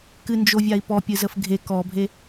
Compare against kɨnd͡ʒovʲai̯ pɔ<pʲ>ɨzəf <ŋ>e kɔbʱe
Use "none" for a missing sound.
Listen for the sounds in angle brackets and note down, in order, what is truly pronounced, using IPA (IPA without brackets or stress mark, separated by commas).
pʲ, ɡʱ